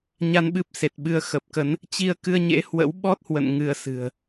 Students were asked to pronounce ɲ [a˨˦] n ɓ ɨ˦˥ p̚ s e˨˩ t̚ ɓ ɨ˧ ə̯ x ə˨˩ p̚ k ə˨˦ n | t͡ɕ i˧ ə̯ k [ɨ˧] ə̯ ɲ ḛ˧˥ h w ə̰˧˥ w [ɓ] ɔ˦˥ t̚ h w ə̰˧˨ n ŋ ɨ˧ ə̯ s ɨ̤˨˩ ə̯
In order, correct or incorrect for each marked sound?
incorrect: a˧, correct, correct

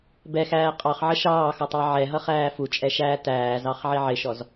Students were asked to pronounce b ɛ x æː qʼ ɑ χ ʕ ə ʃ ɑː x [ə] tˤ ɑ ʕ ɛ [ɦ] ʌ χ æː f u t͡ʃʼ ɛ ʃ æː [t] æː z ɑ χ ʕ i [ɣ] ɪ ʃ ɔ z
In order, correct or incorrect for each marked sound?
incorrect: ʌ, correct, correct, incorrect: ʕ

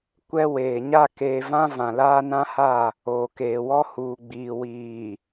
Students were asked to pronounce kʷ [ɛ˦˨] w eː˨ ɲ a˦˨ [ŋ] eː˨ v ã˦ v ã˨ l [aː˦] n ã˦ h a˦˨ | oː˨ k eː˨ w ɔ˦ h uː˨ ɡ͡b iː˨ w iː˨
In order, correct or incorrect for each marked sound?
incorrect: ɛ˦, incorrect: k, correct

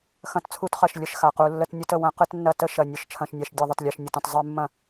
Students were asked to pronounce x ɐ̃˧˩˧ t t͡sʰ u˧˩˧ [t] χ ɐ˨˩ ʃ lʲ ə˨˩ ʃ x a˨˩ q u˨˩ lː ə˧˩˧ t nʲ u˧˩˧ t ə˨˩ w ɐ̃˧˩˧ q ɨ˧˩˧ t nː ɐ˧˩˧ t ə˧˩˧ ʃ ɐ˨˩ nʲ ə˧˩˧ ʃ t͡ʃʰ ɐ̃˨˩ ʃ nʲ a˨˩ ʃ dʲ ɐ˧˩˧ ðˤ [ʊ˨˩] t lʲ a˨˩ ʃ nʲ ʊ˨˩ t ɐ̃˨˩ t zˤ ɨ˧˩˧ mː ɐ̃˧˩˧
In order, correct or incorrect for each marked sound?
correct, correct

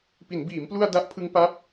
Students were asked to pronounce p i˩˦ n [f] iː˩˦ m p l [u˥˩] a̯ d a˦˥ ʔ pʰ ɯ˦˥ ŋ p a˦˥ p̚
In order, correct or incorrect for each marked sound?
incorrect: b, incorrect: u˧

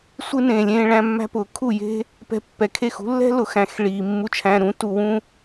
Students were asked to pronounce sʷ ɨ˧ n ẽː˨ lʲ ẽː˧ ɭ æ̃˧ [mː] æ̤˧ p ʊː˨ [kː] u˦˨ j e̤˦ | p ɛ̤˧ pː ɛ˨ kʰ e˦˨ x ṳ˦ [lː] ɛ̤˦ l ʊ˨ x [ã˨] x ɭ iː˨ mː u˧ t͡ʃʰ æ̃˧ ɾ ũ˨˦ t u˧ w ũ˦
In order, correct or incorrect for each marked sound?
correct, incorrect: kʰ, correct, incorrect: æ̃˨

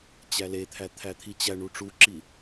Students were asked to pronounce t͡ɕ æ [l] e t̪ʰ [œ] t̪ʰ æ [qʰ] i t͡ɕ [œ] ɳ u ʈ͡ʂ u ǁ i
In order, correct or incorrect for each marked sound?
correct, incorrect: æ, incorrect: t̪ʰ, incorrect: æ

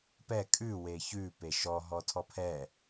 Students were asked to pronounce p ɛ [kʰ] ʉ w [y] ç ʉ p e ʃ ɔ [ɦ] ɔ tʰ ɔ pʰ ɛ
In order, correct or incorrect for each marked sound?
incorrect: kʼ, incorrect: e, correct

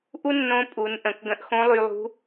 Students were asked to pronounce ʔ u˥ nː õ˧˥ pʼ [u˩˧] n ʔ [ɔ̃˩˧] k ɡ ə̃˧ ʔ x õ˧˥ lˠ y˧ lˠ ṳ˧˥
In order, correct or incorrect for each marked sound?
correct, incorrect: ə̃˩˧

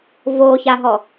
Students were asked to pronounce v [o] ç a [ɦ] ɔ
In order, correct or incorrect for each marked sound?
correct, correct

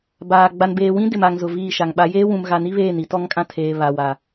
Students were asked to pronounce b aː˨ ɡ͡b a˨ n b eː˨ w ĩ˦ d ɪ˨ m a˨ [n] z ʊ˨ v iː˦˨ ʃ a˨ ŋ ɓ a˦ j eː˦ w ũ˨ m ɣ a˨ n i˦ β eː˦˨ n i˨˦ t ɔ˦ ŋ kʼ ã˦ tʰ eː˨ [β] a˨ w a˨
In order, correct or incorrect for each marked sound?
incorrect: ŋ, correct

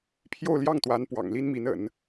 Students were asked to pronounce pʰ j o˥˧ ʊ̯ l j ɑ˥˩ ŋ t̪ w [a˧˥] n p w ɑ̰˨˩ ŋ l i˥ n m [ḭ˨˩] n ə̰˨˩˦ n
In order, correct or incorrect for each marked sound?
correct, incorrect: i˧˥

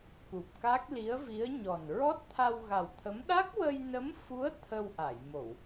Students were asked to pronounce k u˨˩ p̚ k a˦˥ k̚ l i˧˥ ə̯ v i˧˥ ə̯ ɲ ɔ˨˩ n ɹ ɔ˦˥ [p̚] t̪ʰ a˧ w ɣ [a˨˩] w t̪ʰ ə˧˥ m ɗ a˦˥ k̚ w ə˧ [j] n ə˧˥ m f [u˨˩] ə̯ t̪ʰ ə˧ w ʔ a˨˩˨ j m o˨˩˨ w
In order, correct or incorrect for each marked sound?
incorrect: t̚, correct, correct, incorrect: u˧˥

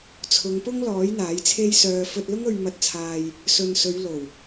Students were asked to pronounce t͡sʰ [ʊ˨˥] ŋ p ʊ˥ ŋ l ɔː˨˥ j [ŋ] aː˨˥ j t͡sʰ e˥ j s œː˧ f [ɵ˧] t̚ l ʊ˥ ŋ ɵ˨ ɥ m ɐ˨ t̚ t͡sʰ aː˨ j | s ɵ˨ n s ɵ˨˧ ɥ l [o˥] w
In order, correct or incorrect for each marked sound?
incorrect: ʊ˨˧, incorrect: n̪, correct, incorrect: o˨˩

